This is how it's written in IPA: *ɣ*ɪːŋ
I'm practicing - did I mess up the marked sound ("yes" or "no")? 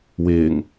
yes